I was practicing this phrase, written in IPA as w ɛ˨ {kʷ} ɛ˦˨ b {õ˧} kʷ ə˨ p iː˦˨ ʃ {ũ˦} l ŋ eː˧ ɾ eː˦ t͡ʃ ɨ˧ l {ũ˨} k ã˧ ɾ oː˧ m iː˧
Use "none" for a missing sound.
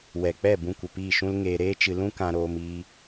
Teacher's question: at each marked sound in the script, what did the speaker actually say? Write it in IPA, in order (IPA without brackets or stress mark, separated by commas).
k͡p, ũ˧, ũ˦, ũ˦